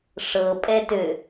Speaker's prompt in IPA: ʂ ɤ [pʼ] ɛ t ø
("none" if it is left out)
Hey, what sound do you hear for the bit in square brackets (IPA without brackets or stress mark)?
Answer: pʼ